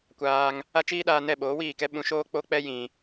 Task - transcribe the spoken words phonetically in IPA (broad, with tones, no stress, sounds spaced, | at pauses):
kʷ aː˧ ŋ | a˦ t͡ʃ iː˦ ɗ aː˧ n ɛ˦˨ ɓ oː˨˦ w iː˦˨ k ɛ˦ ɓ ũ˧ ʃ oː˦ k͡p o˦ k͡p ɛ˦ j ĩ˧